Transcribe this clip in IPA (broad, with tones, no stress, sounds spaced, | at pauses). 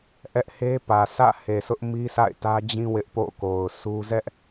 ʔ ɛ˦ ʔ h e˦ p ä˨ s ä̰˦˨ h e˨ sʰ ʊ˦ ʔ m i˦ sʰ a̰˦˨ ɪ̯ t ä˦ d͡ʑ ĩ˦ w ɪ˦ ʔ p o̰˦˨ k o˨ ʊ̯ sʰ u˦ z ɛ˦ ʔ